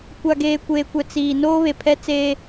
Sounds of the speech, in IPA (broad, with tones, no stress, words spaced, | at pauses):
kʷa˨ɡeː˨kʷeː˨kʷɛ˨ t͡siː˨ noː˦βe˨pʰɛ˦ t͡seː˦